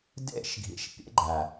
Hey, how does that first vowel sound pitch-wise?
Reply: falling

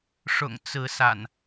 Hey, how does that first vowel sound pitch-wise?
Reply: low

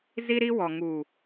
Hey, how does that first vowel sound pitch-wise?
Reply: high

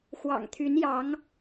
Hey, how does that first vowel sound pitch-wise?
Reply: low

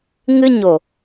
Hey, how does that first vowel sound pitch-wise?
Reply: high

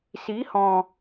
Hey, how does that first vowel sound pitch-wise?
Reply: rising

